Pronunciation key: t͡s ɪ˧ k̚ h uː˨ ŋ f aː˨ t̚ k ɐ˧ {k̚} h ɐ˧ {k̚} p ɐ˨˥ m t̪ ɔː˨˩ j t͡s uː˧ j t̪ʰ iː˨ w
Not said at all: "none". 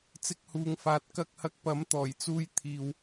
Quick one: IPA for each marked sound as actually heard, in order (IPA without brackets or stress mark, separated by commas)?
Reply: k̚, k̚